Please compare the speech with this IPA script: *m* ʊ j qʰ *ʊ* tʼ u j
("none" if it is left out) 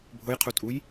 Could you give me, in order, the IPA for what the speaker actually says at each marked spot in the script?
bʱ, u

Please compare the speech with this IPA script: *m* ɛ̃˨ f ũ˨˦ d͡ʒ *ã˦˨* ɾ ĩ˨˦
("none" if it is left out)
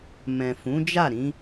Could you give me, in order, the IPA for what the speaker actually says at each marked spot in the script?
m, a˦˨

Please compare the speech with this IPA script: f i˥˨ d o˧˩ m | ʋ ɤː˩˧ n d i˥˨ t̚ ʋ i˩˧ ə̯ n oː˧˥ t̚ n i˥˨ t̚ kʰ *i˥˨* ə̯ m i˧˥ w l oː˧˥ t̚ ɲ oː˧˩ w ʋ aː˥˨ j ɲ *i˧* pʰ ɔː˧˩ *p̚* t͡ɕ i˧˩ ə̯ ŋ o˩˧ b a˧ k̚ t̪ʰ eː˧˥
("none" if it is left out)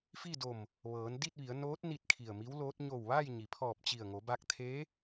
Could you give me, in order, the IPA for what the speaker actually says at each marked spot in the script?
i˧˩, i˩, p̚

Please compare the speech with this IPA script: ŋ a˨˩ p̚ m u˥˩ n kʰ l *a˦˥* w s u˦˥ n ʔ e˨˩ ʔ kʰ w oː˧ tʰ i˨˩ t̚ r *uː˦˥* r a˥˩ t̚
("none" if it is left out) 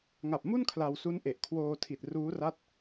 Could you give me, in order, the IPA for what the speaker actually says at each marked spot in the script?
a˧, uː˦˥

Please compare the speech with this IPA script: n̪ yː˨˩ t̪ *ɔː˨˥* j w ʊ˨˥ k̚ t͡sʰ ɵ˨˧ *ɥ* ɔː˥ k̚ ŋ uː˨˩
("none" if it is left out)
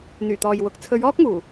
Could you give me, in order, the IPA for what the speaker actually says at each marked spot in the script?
ɔː˨, ɥ

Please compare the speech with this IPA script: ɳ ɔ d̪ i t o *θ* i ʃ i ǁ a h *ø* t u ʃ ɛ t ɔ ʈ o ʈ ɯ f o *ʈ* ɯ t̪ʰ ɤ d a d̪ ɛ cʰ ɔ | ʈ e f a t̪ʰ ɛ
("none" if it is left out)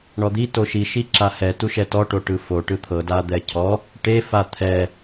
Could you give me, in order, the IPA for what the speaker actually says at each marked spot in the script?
ʃ, ɛ, ʈ

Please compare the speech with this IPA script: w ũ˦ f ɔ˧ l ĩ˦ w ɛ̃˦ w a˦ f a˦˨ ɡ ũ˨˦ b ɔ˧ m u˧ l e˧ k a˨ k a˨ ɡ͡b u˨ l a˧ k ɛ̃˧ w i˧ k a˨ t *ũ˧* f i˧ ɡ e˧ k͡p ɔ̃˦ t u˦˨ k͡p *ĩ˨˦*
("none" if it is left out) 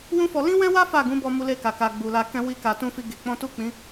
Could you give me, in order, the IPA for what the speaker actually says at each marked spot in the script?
ũ˧, ĩ˨˦

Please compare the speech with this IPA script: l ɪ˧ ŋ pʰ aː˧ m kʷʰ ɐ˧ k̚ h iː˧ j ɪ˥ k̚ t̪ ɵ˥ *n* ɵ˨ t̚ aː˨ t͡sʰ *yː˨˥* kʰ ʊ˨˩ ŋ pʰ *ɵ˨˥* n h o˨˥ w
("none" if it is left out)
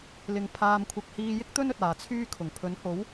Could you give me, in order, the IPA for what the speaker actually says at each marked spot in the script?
n, yː˥, ɵ˨˥

